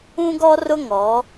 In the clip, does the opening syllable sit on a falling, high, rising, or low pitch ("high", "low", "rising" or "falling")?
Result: high